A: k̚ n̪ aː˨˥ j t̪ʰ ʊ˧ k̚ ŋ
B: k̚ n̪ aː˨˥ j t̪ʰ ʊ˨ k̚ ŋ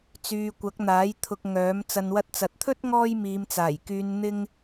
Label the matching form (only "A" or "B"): A